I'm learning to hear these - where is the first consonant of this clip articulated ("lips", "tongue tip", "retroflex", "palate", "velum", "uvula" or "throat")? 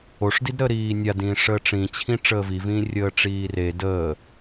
retroflex